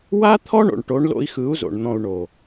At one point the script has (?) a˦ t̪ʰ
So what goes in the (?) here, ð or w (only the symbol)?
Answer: w